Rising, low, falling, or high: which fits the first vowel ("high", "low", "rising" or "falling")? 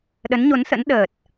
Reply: rising